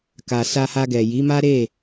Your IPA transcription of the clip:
k a˨ s a˧ h a˧ ɡ ɛ˨ j i˨˦ m a˦ ɾ e˦˨

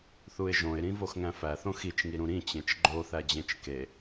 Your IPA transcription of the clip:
θ u ɪ̯ ʒ õ ɪ̯ ɾ ĩ v o x ŋ æ̃ f æ θ õ x i t͡ʃ ŋ i ɾ ũ ɾ ĩ t͡ɕ ẽ t͡ʃ ɡ͡ǃ o θ æ d͡ʑ ẽ t͡ʃ k e

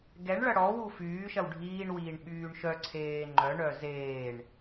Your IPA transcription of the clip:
ɡ ɛ ɳ ɭ ɐ ɽ ɔ w u f yː ʃ ɐ w ɖʱ iː ɳ w iː ɳ ɓ yː ɳ ʃ œ ǀʰ eː ŋ͡ǃ œ ɳ œ z eː ɳ

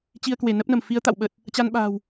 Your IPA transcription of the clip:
t͡ɕ i˧ ə̯ k w e˧˩ n ə˦˥ p̚ n ə˧˩ m f i˨˦ ə̯ t̪ a̰˧˨ w ɓ ə˨˩ t̚ | t͡ɕ a˧ n ɓ a̤ː˨˩ w

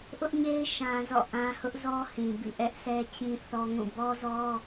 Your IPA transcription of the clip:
ʔ ʊ˦ ʔ ɲ e˦ ɪ̯ ʃ ã˦ z ɔ̰˦˨ ʔ ã˦ h ʊ˦ ʔ z ɔ˦ h ĩ˨ b ḭ˦˨ ʔ ɛ˦ ʔ sʰ ɛ˦ t͡ɕ ĩ˦ θ ɔ˦ ŋ ũ˦˨ b ɔ˦ z ɔ˦

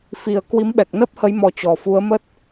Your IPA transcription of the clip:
f i˨˩ ə̯ k w i˨˦ m ɓ ɛ˨˩ k̚ n əː˦˥ p̚ h ə˨˦ j m ɔ˧ t͡ɕ ɔ˨˩ f u˨˦ ə̯ m ə˦˥ t̚

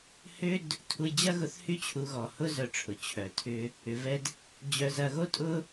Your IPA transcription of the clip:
h ʏ˥ d | tʰ u˧ j d͡ʑ ɐ˥ ɣ ʊ˧ θ h y˥ t͡ɕʰ u˧ ɣ ɔ˨˩ h ʊ˥ z œ˧ ʈ͡ʂʰ ʊ˨˩ t͡ɕʰ œ˨˩ tʰ ʏ˧ | ʏ˧ v ɛ˥ d | d͡ʑ œ˧ z ɐ˧ ɣ o˥ tʼ ʊ˥

